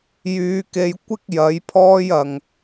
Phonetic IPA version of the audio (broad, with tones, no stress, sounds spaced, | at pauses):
j yː˨˧ k e˧ j kʷ ɪ˥ k̚ j ɐ˨˥ j pʰ ɔː˥ j ɐ˨ ŋ